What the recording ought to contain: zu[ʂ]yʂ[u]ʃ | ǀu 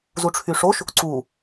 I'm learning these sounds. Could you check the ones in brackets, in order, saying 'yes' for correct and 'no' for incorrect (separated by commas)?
no, no